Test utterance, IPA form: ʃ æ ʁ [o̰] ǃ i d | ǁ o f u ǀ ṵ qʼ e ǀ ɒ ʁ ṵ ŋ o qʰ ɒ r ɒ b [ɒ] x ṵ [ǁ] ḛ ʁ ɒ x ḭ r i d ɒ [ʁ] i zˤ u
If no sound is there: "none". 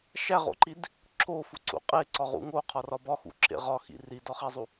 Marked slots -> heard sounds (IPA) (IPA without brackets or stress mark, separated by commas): o̰, ɒ, ǁ, χ